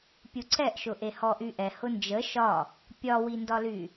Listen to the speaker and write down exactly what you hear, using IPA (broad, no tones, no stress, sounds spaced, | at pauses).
pʲ u ǀ ɛ ʔ ʃ ʊ ʔ e h ɔ ʔ y ʔ ɛ h ʊ n d͡ʒ ə ʃ ɒ | pʲ ɒ w i n d ɒ l y